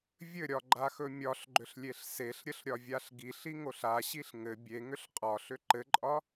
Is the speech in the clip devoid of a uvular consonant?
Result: no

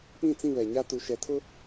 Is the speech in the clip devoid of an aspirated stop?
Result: no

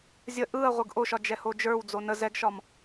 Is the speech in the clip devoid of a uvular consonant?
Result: no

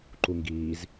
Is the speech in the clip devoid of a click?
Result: no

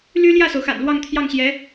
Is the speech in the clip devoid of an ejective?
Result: yes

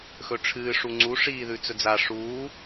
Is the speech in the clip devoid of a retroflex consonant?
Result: no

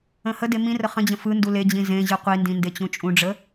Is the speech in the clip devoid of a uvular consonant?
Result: no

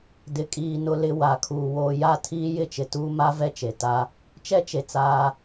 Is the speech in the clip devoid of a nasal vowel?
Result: yes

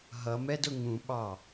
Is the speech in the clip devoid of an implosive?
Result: no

